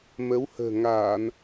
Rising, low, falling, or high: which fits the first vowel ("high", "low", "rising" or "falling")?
rising